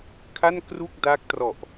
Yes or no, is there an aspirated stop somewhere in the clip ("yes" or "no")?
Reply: yes